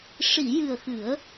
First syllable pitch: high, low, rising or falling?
low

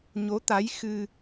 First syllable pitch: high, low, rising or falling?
rising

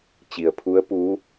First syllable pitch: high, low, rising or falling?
low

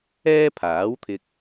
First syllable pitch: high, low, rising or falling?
high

